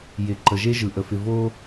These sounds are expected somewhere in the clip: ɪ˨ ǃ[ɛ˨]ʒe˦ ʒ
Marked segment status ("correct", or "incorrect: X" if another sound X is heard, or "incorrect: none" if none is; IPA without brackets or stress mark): incorrect: ə˨